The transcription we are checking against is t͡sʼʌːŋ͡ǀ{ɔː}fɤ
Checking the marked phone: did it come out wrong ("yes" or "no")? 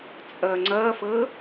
yes